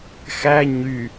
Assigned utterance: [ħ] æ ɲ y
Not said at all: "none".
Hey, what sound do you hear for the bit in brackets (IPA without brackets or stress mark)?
x